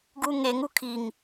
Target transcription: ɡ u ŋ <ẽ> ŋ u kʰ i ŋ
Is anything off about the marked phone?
yes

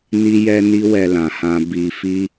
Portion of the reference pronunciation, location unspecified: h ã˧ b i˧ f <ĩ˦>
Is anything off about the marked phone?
yes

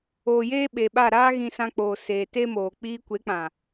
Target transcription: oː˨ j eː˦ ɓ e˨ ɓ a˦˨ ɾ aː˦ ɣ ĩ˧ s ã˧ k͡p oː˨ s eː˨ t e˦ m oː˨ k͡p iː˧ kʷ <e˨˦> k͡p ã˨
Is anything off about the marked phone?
no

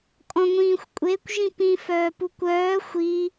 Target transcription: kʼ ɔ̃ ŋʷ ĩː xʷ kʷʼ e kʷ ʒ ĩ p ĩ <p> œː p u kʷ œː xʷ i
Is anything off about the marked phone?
yes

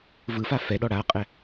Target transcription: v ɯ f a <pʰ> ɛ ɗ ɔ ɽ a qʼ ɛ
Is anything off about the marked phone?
yes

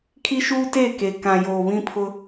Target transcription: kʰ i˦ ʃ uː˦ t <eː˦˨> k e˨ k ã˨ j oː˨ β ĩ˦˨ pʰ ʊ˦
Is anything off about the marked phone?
no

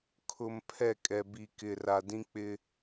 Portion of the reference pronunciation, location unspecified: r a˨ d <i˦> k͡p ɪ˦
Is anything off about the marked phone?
yes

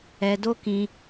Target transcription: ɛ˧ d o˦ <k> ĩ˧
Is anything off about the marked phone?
no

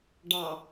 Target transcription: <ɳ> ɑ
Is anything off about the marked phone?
yes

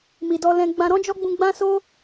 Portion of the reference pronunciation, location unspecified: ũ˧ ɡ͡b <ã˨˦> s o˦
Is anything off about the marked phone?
yes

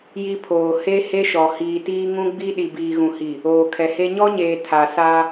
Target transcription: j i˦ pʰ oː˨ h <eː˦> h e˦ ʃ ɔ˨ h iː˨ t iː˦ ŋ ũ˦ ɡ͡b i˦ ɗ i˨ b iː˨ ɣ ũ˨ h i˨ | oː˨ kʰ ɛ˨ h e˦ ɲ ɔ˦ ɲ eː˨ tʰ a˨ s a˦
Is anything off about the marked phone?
yes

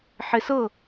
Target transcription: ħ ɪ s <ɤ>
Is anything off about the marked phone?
no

